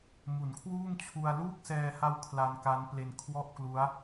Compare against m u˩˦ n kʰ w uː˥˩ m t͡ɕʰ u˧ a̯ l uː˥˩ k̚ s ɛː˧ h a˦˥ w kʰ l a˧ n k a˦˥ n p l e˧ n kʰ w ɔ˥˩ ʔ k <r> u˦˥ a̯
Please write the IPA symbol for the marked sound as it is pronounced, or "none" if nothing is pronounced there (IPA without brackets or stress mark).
l